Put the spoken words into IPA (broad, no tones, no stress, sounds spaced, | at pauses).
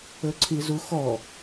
ɵ ǀʰ i z u x ɔ